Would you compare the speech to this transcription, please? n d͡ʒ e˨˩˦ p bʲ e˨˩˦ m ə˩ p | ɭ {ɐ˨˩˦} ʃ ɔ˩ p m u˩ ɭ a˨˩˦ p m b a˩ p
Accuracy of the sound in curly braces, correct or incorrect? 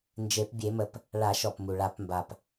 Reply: incorrect